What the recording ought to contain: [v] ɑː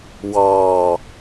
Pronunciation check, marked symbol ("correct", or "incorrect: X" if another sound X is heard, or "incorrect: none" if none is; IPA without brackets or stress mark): incorrect: w